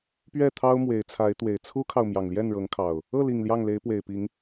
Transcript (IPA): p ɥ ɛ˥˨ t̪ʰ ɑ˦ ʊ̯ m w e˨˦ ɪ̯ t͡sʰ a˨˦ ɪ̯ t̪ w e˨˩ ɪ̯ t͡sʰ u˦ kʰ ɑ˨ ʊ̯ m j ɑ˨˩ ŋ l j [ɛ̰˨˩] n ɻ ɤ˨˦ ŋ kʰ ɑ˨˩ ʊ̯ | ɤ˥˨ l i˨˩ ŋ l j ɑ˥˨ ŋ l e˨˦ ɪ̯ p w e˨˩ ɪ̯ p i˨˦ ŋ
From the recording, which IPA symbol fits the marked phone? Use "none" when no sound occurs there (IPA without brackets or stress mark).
ɛ˥˨